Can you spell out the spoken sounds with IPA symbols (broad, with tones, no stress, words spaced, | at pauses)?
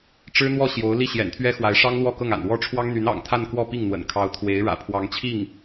ʈ͡ʂɻ̩˥n̪wɔ˥˩ ɕjo˧˥ʊ̯ li˥˩ɕjɛ̰˨˩nt̪ʰɥɛ˥xwa˧˥ɪ̯ ʂɑ˥ŋ lwɔ˥˧kɤ˥˩ŋa̰˨˩n wɔ˥ʈ͡ʂʰwɑ˥ŋn̪y˧˥n ɑ̰˨˩ŋ t̪ʰa˥˧nkwɔ˥˧ pi˥˩ŋn̪wə̰˨˩n kʰɑ˧˥ʊ̯t̪ʰwe˧˥ɪ̯ ɻä̰˨˩pʰwɑ˧˥ŋt͡ɕʰi˥˩ŋ